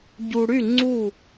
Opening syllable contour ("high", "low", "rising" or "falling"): low